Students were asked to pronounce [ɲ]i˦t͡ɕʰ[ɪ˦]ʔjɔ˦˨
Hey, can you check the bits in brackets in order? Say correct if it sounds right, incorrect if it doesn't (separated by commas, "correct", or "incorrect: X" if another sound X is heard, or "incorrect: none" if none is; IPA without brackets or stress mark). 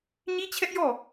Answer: correct, incorrect: ɛ˦